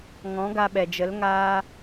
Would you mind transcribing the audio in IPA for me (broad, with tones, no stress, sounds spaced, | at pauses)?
ŋ ɔ̃˨˦ ɡ a˧ ɓ ɛ˨ d͡ʒ ə˨˦ l ŋ aː˦